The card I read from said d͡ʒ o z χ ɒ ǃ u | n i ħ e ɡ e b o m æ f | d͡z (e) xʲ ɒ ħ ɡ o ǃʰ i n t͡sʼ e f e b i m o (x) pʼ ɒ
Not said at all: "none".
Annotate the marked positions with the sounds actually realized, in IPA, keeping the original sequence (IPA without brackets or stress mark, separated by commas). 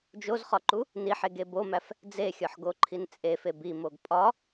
e, ɡ